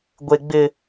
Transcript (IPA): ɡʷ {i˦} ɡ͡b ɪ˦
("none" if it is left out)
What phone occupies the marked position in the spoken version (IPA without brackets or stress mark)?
e˦